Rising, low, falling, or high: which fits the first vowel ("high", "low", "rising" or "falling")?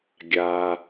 low